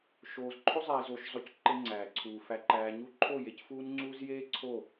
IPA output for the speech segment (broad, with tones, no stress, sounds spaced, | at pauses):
ʃ oː˨ z ǃʰ o˦ zˤ eː˨ z oː˨ ʃ zˤ o˨˦ c ǃ e˦ ŋ͡ǀ æː˨ ǀʰ uː˨ f æ˨ ǃ æː˨ ɲ u˦ ǃʰ o˦˨ j e˨ c f uː˦ n ŋ͡ǀ uː˦ z j eː˦ ǀʰ o˦˨